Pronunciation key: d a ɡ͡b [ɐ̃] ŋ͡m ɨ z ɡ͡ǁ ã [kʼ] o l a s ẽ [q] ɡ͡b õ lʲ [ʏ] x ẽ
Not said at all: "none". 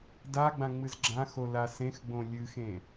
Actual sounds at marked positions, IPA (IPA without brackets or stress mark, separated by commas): ã, x, x, ɨ